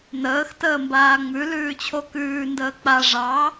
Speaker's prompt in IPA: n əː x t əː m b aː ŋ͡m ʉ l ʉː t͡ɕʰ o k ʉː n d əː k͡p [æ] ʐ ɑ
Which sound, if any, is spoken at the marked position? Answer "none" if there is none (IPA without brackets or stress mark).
a